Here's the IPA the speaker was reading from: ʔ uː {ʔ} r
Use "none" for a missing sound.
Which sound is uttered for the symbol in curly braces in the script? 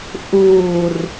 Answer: none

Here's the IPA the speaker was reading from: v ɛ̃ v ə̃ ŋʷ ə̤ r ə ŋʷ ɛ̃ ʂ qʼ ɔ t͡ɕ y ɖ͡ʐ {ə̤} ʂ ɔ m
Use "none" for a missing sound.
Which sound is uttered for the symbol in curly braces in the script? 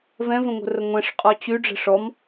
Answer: ə̤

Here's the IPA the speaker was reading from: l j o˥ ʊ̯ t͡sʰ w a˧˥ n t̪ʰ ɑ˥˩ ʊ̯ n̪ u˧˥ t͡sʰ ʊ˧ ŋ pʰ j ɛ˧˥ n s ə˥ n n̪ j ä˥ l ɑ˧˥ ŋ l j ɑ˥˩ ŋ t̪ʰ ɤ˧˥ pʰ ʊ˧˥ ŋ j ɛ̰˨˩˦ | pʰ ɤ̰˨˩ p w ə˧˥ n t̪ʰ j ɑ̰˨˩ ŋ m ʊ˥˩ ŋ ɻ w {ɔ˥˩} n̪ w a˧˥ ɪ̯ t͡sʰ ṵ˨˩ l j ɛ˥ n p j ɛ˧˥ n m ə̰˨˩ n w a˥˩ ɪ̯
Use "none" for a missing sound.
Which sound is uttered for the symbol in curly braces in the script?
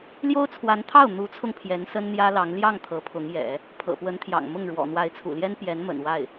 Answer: ɔ̰˨˩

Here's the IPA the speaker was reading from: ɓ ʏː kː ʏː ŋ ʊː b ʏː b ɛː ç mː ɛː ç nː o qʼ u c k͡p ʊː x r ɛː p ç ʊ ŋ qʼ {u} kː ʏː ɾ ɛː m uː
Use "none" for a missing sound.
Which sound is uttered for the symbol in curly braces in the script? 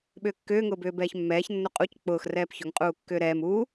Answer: uː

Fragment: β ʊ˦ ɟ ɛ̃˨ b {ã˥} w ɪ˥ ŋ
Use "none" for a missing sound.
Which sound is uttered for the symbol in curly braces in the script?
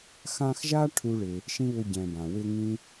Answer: ã˩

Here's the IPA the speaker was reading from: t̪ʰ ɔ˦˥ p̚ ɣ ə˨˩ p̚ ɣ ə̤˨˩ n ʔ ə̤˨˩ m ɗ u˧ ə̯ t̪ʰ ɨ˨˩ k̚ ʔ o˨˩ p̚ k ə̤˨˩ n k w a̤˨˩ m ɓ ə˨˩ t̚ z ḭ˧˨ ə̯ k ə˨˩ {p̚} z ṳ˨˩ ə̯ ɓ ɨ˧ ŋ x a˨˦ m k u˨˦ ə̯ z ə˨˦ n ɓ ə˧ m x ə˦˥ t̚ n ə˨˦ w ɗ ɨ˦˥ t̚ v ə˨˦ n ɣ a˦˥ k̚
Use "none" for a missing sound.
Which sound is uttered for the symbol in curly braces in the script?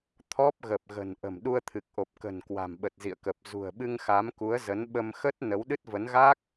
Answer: p̚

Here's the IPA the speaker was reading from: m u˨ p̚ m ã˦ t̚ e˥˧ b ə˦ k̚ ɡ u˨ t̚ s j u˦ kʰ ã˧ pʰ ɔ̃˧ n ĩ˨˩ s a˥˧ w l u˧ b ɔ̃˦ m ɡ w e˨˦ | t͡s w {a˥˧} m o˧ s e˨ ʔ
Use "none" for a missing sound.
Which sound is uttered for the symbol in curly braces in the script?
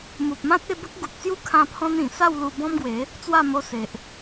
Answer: a˥˧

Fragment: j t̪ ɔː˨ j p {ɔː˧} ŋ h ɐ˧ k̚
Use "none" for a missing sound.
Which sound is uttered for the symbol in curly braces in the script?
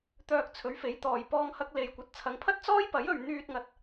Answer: ɔː˧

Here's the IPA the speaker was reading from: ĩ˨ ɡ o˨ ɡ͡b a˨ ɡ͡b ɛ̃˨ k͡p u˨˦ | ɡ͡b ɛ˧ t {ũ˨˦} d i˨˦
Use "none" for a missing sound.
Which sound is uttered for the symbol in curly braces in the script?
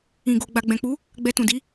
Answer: ũ˨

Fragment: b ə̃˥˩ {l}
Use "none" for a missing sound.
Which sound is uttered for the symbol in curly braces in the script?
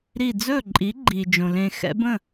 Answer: none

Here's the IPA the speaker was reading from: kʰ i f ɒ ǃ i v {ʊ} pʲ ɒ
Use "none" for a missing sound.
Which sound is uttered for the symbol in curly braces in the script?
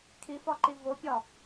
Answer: ʊ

